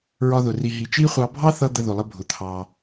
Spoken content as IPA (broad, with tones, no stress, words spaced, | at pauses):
ɹɒ˧ðʊ˩ ri˩ɦi˩t͡ʃi˥χʷɑ˧ bʱɑ˥θʌ˧ d̪ə˧ðʊ˩lˠə˧bʱʊ˩ t̪ʰɑ˩